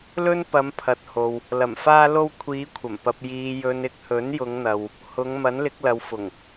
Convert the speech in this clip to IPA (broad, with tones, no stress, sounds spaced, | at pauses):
l ɵ˥ n p ɐ˨˧ m pʰ ɐ˨ t̚ h o˨ w | l ɐ˨˩ m f aː˧ l o˧ w kʷʰ iː˨˧ kʷʰ ɐ˨˩ m p ɐ˨ p̚ j iː˨ j ɵ˨ n ɪ˨ k̚ h ɵ˨˥ n j ʊ˨˧ ŋ n̪ ɐ˨ w | h ʊ˨˧ ŋ m ɐ˨˥ n l ɪ˨˥ k̚ l ɐ˨˧ w f ʊ˨˩ ŋ